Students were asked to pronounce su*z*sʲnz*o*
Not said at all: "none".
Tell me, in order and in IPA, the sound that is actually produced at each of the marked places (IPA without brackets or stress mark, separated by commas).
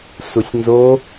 none, o